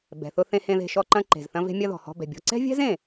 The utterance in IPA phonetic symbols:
bɛ̤˩θʊ˧ θẽ˧hẽ˧ðe̤˧ʃɔ˧ ǃɐ̃˧ǃe̤˩zθɐ̃˧ ve̤˧mʲɐ˧ ðɔ̤˩hɔ̤˧bɛ̤˩bʲɔ̤˧ ǀɛ̤˥vʲɛ̤˥zẽ˩

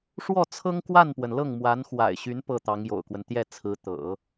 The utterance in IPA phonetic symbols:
ʂwɔ˥˩t͡sʰɤ˥ŋkwa˥˩npwə˩n lɤ˥˩ŋmwa˧˥nxwa̰˨˩ɪ̯ɕy˧˥n pɤ˥˩t̪ɑ˧˥ŋjo̰˨˩ʊ̯kwə˦n t̪jɛ˥˩t͡sʰɹ̩˧˥ t̪ɤ̰˨˩˦

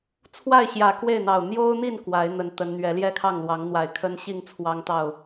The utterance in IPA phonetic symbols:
t͡sʰwa˥˨ɪ̯ɕjä˨˩ kwe˥˨ɪ̯n̪ɑ˨˩ʊ̯ n̪jo˦ʊ̯n̪i˥˨n kwa˨˦ɪ̯n̪ə˨˦n t̪ə˨˦n n̪ɥɛ˨˦ljɛ˥˨kʰɑ˥˨ŋlwɑ˨˦ŋ n̪wa˨˩ɪ̯kʰə˦nɕi˥˨ŋ t͡sʰwɑ˦ŋt̪ɑ˥˨ʊ̯

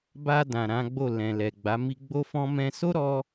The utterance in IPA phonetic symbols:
ba˧ dã˨ɾã˨˦ɡ͡bo˦˨ lɛ̃˨ lɛ˨ɡ͡ba˨˦mi˦ ɡ͡bo˦fɔ̃˦ mɛ̃˧so˦ɾɔ˧

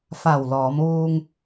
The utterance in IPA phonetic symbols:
fa˧˩wlɔː˩˧mʋuː˧ŋ

